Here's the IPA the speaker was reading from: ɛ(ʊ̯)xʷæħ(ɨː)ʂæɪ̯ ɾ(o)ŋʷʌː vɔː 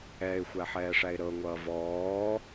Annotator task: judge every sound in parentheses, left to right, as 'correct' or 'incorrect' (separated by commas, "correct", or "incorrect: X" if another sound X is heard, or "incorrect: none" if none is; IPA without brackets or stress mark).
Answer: incorrect: ɪ̯, incorrect: ɛː, incorrect: ɤ